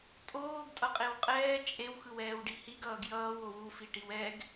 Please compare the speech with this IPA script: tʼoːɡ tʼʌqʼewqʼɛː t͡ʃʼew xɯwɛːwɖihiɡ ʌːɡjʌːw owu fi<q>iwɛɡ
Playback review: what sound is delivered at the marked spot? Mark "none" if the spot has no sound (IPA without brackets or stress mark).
ʈ